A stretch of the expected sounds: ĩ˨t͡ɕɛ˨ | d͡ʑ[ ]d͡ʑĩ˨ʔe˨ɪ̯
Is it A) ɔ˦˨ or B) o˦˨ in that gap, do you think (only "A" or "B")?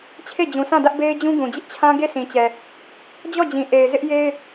A